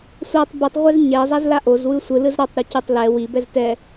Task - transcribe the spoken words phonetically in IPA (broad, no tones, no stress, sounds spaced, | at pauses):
sʷ a tˤ b ɯ tˤ ʁʷ ɛ z ɲ ɛ zˤ a z l a ʔ o z w ɯ sʷ ɯ l ɯ z ɾ a tˤ ɾ u c ɯ tˤ l ɛ w i b ɛ z t ɛ